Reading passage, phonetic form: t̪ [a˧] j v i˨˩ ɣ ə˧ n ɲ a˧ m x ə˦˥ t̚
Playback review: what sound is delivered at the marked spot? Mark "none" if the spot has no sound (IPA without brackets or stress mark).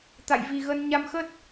a̰˧˨